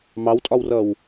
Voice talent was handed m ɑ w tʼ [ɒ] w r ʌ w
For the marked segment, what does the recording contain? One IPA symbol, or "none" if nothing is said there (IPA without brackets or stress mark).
ɒ